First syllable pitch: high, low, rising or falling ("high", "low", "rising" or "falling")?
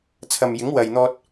low